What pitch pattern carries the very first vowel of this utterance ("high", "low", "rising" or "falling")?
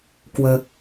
low